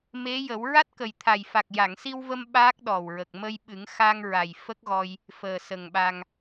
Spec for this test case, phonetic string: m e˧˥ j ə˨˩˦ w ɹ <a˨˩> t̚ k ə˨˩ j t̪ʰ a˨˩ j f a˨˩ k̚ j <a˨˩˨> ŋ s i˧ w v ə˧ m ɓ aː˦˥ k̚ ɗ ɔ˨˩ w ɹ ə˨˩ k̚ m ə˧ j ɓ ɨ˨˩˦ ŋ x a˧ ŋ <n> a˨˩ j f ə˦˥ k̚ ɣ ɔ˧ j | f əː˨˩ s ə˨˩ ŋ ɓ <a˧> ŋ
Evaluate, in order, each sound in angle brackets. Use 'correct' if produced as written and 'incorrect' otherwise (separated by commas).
incorrect, correct, incorrect, correct